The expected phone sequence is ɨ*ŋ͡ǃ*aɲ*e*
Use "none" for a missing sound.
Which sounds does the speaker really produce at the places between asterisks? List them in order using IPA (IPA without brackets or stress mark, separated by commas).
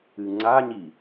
ŋ͡ǀ, i